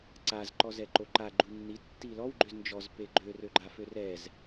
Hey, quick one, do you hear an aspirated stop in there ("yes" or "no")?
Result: no